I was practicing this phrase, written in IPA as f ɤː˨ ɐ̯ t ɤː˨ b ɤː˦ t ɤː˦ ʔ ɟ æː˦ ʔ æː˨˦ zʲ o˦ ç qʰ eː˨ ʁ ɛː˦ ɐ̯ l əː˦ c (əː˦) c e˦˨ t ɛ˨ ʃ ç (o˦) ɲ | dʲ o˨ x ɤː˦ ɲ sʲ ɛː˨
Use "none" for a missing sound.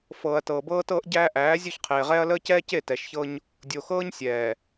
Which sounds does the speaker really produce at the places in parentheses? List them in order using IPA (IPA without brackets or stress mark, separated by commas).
ɛː˦, ɤ˦